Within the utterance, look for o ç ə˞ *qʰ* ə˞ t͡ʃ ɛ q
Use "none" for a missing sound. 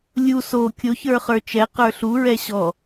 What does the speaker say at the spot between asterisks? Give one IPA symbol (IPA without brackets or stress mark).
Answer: χ